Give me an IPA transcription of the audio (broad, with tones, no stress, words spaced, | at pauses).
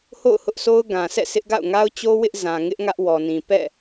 ho̰˦˨ʊ̯hʊ˦ʔsʰo˦ʊ̯ ɡã˨ sʰɛ̰˦˨sʰɪ˦ʔɡa̰˦˨ʊ̯ ŋa˦ʊ̯t͡ɕo˦wɪ˦ʔ zã˨ŋɪ˦ʔ ŋä˦ʔwɔ˨nĩ˨ pɛ̰˦˨